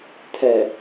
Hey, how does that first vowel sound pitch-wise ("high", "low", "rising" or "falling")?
low